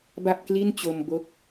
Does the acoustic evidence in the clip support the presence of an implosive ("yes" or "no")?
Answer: no